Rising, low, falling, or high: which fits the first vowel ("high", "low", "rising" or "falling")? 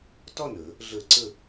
falling